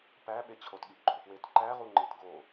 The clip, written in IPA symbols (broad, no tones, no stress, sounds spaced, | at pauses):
p æ ɓ e t͡ɕʰ o t ɠ i ʔ ɡ͡ǃ o f w e t ǃ æ ʁ u ŋ͡ǃ i t ɡ o